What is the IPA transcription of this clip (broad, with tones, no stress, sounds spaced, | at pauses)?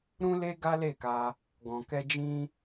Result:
ɾ ũ˦ l e˦ ɡ a˦ l e˦˨ k a˧ | ɡ ɔ̃˨ k ɛ˧ d͡ʒ ĩ˧